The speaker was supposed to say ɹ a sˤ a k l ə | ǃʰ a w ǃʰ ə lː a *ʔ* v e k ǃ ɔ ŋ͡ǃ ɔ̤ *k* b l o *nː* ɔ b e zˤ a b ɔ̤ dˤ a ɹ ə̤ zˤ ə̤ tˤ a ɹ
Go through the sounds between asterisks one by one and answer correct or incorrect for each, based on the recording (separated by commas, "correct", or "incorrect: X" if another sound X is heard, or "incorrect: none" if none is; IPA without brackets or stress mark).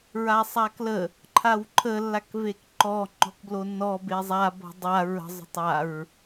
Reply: incorrect: k, correct, correct